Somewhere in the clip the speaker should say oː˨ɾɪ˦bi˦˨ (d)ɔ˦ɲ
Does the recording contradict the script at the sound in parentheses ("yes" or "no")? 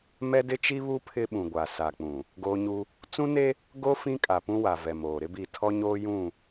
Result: yes